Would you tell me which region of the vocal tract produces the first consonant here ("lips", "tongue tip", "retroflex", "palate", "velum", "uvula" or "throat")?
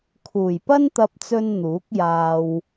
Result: velum